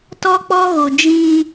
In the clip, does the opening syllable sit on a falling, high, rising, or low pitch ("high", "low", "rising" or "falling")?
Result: high